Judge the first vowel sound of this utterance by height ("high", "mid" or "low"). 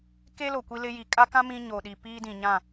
mid